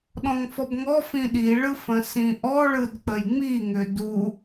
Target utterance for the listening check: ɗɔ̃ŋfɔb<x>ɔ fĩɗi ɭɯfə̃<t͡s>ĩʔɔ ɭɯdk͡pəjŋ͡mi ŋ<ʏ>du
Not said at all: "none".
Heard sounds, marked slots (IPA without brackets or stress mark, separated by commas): ŋ, s, ʏ